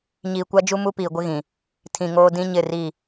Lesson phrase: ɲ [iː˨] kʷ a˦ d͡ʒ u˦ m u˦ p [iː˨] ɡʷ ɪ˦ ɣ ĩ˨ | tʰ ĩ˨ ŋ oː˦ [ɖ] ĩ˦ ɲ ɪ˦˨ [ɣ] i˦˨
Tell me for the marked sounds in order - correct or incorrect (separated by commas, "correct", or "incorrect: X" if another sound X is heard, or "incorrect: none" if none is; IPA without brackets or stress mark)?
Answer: correct, correct, incorrect: d, incorrect: r